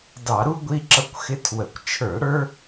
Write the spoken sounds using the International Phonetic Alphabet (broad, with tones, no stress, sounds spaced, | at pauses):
d ɑ˧˩˧ ɾ u˦ ɡʷ i˦ ǁ ʌ˦ kʷ x ɪ˦ tʰ w ə˧˩˧ kʷ t͡ʃʰ ə˞˧˩˧ ɽ ə˞˦